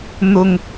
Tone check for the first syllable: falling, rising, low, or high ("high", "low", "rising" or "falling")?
low